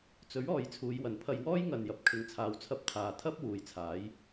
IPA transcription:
t͡sɵ˨˥ɥ ɔː˨˧jt͡sʰuː˨˧jwɐ˨npʰɐ˧j wɔː˥jŋɐ˨n jɐ˨p̚kʰɪ˨˧ŋt͡sʰaː˨w t͡sʰɐ˧p̚t̪ʰaː˨ t̪ʰɐ˥p̚ wuː˨˧jt͡sʰaː˨˥j

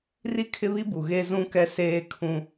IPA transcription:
ri˦kʰɪ˦βi˦bu˨ ɣe˦zũ˦kɛ˦ seː˦kʰũ˦

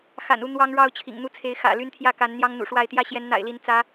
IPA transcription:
xa̰˨˩nu˥˩ n̪wɑ˥ŋɻɑ˥ʊ̯ t͡ɕʰḭ˨˩ŋn̪u˥t͡sʰe˧˥ɪ̯ xä̰˨˩ ly˥nt̪ʰjä˥˩ ka˧˥n n̪jɑ˥ŋn̪ṵ˨˩ʂwa˥˩ɪ̯ t̪jä˥ɕjɛ˧˥nn̪a̰˨˩ɪ̯li˧˥n t͡sä˧˥

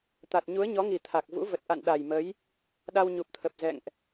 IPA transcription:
t̪a˨˩t̚ ɲu˨˦ə̯ɲɔ˨˦ŋi˨˩ t̪ʰa˨˩k̚vṵ˧˥və˨˩t̚ ʔa̰˧˨nɗa˨˩jmə˨˦j | ɗa˧wɲu˨˩p̚t̪ʰə˨˩p̚ zɛ̰˧˨ŋʔ

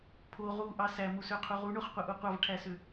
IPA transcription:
pʰo ʁuʔɑ sæmusøqʰu ʁuɳoχqʷɯʔu qʷɑvʈʰæsø

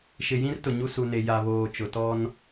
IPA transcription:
ʃɪ˨jĩ˦rtʊ˨ ɲu˦su˨ne˨ ja˨βoː˨ t͡ʃʊ˨tɔ˦n

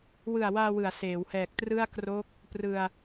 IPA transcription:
wɯ˨˩a̯waː˧wɯ˩˦a̯ seː˩˦whɛː˨˩k̚trɯ˥˩a̯ kro˦˥k̚ | prɯ˧a̯

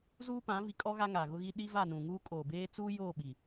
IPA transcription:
zuː˦pã˨˦vi˨kʼɔ˦ ɣa˦ŋa˨ɣʊ˦ɣi˦ ɗi˦va˦˨nũ˨ŋuː˦ kʼoː˨beː˦ t͡suː˦joː˦˨ɓi˨

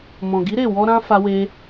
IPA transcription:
mɔ̃˨ɡi˨˦ɾe˦˨wɔ˧ ɾã˦fa˧we˧

